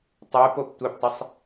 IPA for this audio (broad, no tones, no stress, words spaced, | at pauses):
tˤuːpop tʷeptˤɯsˤ